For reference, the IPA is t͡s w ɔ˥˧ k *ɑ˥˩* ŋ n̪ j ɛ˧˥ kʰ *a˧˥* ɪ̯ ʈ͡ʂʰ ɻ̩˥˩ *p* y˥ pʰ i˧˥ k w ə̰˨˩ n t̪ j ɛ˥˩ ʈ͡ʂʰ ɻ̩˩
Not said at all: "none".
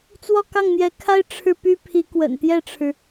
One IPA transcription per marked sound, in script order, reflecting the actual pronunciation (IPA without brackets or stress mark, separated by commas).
ɑ˥˩, a˥, p